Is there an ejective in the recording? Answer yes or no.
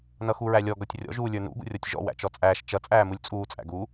yes